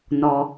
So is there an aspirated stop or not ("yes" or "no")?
no